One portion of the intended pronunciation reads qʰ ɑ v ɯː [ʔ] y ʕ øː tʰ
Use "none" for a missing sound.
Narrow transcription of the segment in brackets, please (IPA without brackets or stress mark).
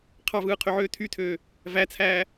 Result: qʰ